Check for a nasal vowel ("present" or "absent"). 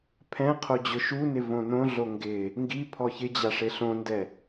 present